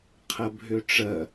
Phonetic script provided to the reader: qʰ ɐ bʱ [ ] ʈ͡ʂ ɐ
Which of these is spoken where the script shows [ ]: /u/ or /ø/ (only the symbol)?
ø